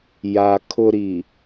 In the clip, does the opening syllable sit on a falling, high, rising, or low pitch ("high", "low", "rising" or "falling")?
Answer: low